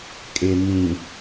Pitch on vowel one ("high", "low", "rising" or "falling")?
low